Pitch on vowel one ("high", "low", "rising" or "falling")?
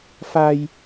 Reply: high